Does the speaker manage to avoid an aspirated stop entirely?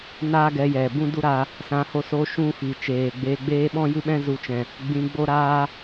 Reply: yes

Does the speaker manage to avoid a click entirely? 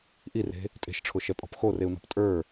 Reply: yes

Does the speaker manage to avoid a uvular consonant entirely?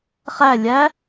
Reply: no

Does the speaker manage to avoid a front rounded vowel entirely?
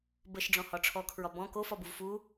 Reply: yes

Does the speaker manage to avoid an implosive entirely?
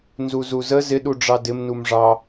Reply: no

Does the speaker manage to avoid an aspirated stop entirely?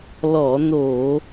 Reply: yes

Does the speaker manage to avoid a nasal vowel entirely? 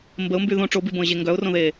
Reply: no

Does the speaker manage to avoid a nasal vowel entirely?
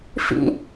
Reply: yes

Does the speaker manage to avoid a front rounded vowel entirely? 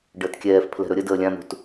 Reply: yes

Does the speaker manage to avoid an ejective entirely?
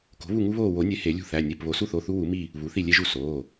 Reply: yes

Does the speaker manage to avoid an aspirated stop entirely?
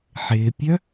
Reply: yes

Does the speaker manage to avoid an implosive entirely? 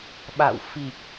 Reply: no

